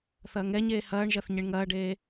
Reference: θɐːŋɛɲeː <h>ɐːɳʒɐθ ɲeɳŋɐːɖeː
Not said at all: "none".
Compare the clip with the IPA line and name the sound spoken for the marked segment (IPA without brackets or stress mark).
h